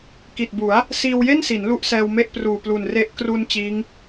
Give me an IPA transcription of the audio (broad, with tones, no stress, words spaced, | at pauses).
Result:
ki˨˩t̚bu˩˦a̯ | siː˧wje˥˩nsi˩˦n lu˥˩ʔsɛː˧wme˥˩ʔpruː˨˩ plu˨˩nre˦˥ʔ kru˧n t͡ɕiː˦˥ŋ